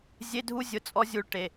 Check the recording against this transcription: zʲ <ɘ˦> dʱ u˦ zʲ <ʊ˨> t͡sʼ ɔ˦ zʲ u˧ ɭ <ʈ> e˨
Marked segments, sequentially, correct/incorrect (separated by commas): incorrect, incorrect, correct